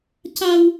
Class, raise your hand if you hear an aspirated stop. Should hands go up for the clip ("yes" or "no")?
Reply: no